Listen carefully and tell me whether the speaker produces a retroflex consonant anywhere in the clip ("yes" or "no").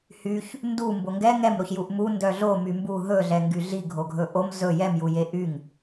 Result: no